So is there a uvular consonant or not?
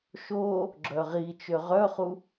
yes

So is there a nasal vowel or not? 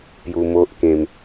yes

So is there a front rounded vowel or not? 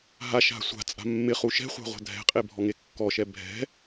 no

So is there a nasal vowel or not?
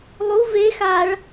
no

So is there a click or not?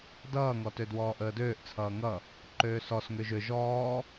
yes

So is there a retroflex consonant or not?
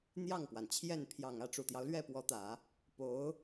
yes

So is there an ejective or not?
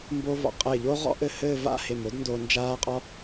yes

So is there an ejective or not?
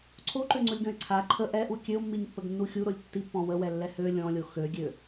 no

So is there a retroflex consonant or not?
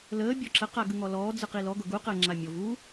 no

